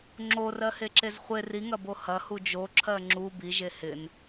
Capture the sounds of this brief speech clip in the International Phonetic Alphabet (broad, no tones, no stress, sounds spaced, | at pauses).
ŋ͡ǁ o r ɜ h e ǁ e z χʷ ɪ r i ŋ ɐ b o h ɐ h u d͡ʒ o ǁʰ ɜ ŋ͡ǁ u b i ʒ e h ɪ n